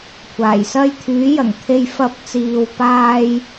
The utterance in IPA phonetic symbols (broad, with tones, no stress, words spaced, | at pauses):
kʷʰaː˨˩jsɐ˥j t̪ʰyː˨˥jɐ˨˩ŋt̪ʰe˧j fɐ˧p̚t͡siː˨w paː˥j